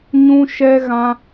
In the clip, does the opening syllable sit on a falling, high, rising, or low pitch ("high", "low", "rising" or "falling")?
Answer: high